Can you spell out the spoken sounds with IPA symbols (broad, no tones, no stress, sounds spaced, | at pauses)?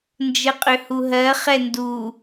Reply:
n d͡ʒ ə qʼ ʏ h u ɦ ɜ χ ɛ n d u